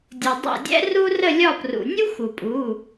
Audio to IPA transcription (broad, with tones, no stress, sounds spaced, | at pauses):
dʲ u˩ dˤ a̰˦˨ dʲ ɛ̰˥ r u˥ r ə˦˨ lʲ ɒ˦˨ p r ṵ˩ nʲ u˥ x u˩ pʼ u˩˧˩